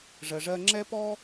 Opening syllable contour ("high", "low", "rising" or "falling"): low